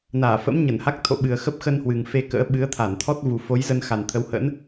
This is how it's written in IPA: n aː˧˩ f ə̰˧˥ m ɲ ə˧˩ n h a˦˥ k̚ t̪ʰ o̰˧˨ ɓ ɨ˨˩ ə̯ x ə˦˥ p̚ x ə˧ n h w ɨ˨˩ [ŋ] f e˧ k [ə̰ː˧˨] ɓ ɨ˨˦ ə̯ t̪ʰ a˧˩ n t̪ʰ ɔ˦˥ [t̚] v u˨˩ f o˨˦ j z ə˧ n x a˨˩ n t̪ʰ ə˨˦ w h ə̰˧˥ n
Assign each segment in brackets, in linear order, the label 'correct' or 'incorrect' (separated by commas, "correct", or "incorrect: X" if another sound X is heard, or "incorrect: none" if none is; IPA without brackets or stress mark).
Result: correct, incorrect: ə̰ː˧˥, correct